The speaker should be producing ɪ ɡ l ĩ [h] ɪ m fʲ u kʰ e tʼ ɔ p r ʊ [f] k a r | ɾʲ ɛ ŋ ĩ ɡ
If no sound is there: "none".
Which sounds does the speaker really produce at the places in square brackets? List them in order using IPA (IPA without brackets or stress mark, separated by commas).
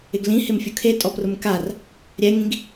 h, m